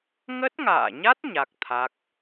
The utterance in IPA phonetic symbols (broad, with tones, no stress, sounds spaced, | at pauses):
ŋ ə˦˥ t̚ ŋ a̰ː˧˨ ɲ a˦˥ t̚ ɲ a˦˥ k̚ t̪ʰ a˦˥ k̚